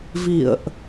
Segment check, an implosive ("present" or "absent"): absent